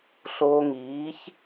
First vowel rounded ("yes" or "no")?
yes